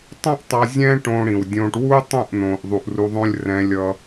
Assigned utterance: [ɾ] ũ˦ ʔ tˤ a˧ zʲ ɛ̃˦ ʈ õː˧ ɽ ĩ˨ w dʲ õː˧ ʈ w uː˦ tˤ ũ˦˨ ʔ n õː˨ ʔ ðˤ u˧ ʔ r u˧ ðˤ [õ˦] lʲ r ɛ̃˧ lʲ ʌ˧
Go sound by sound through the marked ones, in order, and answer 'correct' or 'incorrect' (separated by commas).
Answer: incorrect, correct